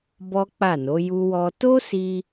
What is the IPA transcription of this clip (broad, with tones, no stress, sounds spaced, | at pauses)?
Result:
b ɔ˦ k͡p a˦˨ n o˨˦ j u˦ w ɔ˦ t o˦ s i˧